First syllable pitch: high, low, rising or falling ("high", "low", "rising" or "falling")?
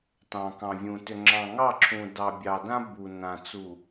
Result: low